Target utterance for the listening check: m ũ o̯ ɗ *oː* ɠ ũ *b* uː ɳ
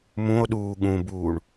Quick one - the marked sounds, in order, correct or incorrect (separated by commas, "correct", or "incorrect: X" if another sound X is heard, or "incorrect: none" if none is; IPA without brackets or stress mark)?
incorrect: uː, correct